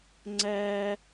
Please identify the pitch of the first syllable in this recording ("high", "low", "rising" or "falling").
high